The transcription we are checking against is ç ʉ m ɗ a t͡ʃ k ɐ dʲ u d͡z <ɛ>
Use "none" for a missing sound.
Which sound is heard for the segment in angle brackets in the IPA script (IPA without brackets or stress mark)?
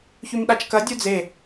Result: e